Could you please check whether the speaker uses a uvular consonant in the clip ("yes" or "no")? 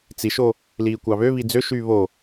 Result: no